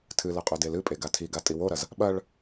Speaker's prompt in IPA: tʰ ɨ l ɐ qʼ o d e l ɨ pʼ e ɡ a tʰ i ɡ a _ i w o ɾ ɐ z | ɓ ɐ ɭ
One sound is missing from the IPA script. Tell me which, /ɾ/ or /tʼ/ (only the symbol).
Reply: tʼ